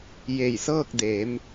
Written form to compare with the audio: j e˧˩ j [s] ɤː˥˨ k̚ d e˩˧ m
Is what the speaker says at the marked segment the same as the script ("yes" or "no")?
yes